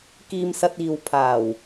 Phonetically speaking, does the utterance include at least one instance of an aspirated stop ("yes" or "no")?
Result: yes